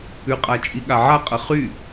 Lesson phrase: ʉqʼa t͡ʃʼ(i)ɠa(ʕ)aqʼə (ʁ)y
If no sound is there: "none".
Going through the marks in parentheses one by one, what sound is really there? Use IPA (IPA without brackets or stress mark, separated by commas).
i, ʕ, χ